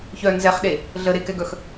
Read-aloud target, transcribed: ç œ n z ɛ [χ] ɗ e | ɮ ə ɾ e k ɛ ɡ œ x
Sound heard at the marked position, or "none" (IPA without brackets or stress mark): χ